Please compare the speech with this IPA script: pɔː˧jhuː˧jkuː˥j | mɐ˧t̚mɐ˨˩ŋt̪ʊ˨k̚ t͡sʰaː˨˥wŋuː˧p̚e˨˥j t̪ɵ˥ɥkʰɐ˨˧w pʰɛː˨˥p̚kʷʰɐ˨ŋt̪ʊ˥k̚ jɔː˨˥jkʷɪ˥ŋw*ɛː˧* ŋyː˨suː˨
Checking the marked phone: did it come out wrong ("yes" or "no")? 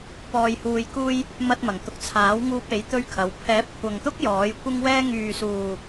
yes